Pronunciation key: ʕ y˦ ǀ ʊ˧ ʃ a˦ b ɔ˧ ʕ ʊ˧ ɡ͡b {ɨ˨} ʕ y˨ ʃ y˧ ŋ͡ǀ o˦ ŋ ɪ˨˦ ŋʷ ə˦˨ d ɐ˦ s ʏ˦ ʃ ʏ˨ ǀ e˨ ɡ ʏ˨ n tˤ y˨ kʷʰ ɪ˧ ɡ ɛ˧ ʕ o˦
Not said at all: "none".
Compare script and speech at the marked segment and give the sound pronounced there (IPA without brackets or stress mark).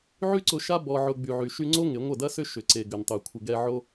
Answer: y˨